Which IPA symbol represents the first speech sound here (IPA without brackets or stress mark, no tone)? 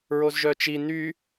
ɹ